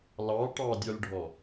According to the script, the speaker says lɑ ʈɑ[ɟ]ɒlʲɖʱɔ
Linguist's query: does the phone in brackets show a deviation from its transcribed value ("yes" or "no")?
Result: yes